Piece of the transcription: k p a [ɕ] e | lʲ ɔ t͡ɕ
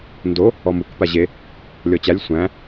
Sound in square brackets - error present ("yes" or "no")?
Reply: yes